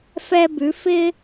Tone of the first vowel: high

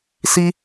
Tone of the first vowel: high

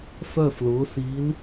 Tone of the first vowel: falling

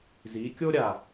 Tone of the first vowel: rising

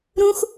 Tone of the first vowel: high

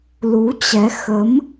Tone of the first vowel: rising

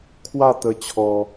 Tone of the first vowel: falling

